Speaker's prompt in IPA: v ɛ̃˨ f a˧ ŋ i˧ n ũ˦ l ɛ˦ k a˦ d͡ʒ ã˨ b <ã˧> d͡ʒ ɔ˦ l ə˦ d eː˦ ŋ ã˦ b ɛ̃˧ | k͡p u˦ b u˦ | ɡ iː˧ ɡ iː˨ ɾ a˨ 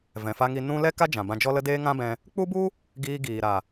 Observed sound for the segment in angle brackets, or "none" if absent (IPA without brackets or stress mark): ã˧